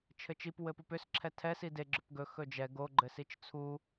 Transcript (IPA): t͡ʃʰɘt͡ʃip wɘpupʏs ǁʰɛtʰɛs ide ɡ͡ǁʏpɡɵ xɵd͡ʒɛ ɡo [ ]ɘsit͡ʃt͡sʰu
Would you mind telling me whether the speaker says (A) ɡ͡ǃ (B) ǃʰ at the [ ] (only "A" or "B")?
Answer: A